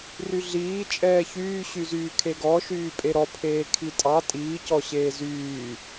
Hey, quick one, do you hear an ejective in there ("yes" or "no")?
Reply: yes